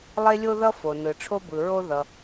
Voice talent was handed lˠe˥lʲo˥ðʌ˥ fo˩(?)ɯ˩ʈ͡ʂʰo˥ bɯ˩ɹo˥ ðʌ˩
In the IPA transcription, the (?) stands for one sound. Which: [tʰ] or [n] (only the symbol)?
n